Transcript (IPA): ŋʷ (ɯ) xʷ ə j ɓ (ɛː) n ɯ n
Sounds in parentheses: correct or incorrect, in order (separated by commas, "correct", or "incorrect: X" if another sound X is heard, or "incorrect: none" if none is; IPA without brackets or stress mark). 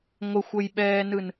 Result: incorrect: ə, correct